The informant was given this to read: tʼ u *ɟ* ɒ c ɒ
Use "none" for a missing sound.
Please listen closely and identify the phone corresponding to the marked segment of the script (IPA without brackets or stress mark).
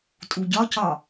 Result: ɟ